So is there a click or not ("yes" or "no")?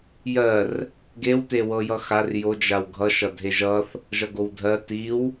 no